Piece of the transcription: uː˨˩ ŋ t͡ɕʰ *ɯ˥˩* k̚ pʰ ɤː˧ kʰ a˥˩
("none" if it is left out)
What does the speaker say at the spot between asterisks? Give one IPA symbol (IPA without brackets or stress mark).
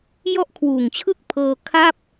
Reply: ɯ˥˩